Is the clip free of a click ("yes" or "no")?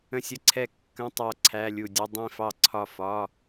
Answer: no